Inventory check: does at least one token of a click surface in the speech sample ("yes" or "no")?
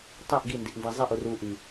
no